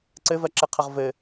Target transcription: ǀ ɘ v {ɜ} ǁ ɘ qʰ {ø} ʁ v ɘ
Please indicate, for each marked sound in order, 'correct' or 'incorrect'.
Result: correct, incorrect: ə

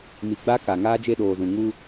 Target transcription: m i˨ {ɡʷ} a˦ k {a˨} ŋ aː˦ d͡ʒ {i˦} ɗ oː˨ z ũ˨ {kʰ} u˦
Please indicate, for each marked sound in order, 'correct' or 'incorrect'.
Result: incorrect: ɡ͡b, correct, incorrect: e˦, incorrect: ŋ

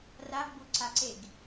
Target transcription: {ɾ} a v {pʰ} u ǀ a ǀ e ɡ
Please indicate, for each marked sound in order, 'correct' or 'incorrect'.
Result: incorrect: r, incorrect: b

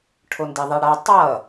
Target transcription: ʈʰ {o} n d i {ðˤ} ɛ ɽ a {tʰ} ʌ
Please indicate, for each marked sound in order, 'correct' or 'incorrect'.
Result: correct, correct, incorrect: tˤ

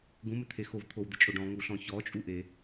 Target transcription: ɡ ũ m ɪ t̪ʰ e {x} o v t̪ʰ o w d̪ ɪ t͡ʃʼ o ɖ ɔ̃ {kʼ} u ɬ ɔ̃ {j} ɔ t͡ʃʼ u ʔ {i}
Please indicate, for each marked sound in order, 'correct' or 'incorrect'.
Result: correct, incorrect: ŋ, incorrect: ç, incorrect: e

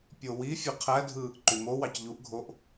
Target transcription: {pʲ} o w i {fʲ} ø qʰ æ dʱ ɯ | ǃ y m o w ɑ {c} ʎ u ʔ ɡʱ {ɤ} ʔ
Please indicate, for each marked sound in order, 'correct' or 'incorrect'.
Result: correct, correct, correct, incorrect: o

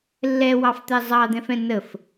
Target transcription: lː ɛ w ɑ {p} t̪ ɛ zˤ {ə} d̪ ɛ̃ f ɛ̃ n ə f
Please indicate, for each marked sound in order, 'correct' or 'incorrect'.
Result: incorrect: f, incorrect: ɑ

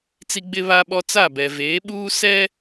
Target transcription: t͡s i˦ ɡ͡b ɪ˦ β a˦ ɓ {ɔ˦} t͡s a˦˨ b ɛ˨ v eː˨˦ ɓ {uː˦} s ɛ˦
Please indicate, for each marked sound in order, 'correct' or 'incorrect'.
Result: correct, correct

